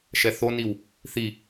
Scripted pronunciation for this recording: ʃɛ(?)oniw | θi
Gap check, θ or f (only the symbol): θ